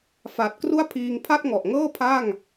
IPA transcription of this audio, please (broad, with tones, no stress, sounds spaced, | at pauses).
f a˨˩ t̚ k r u˥˩ a̯ pʰ iː˧ ŋ pʰ a˥˩ t̚ ŋ ɔ˨˩ ʔ ŋ ɤː˥˩ pʰ a˥˩ ŋ